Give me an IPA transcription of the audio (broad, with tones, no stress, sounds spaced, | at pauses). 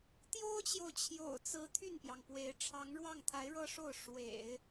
t̪ j o˥ ʊ̯ t͡ɕ j o˨ ʊ̯ t͡ɕʰ j o̰˨˩ ʊ̯ t͡s ɹ̩˧˥ t̪ʰ y˥˩ n p j ɑ˩ ŋ p w e˧˥ ɪ̯ ʈ͡ʂʰ ɑ˧˥ ŋ ɻ w ɑ˥˩ ŋ t̪ʰ a˧˥ ɪ̯ ɻ ɤ˥ ʂ o˥˩ ʊ̯ ʂ w ḛ˨˩˦ ɪ̯